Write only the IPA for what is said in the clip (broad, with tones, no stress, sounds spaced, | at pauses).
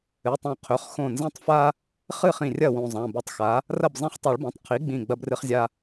ɨ˩˧˩ tˤ õ˧˩ qʰ ɵ˩˧˩ χ x õ˧˩ n z ẽ˦ tˤ f a˦ | χ ɨ˥˩ χ ĩ˧˩ rʲ ɐ˥˩ w ũ˧˩ zˤ ã˩˧˩ b u˩˥ tˤ x a˩˥ | r ɐ˥˩ b zˤ ẽ˦ χ tˤ u˨˩˦ ɭ b õ˩˧˩ tˤ qʰ i˩˥ ɡ͡b ĩ˧˩ ɡ͡b ɐ˦ b r ɨ˦ χ zʲ a˦